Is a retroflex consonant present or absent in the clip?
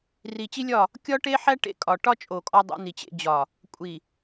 present